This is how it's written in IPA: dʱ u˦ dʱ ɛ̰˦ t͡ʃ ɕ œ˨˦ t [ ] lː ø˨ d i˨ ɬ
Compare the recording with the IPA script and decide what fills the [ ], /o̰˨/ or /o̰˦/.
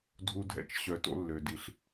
o̰˦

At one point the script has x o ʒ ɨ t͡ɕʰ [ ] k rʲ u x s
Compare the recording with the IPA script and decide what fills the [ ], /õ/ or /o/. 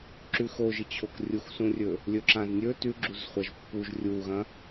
o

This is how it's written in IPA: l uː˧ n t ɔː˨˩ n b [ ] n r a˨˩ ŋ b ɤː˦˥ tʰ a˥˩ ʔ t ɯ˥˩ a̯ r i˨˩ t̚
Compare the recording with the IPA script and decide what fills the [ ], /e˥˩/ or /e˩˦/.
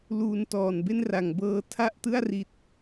e˥˩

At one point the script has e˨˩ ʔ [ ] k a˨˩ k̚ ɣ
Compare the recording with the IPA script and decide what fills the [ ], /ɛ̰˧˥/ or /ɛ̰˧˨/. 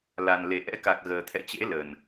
ɛ̰˧˥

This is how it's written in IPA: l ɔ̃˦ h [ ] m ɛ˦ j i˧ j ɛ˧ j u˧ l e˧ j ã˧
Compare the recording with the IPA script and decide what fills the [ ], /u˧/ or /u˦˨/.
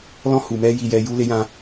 u˧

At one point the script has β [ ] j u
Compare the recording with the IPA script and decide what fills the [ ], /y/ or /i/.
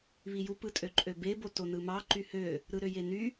i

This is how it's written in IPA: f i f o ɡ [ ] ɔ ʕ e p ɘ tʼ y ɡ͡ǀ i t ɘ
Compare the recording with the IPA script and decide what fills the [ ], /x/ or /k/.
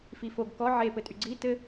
k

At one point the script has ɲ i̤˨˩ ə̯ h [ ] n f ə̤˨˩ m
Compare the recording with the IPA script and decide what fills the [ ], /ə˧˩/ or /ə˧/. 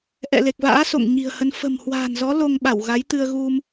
ə˧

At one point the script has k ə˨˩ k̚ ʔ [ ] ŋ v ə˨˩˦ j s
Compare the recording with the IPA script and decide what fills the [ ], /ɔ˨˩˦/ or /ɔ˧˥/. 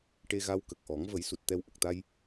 ɔ˨˩˦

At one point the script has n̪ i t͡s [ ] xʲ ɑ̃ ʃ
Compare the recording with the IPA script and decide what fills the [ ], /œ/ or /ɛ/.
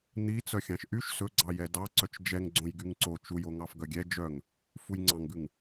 œ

